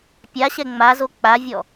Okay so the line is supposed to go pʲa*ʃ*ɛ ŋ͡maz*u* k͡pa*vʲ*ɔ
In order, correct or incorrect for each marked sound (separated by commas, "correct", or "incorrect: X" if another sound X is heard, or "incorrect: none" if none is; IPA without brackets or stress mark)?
incorrect: ɕ, incorrect: o, correct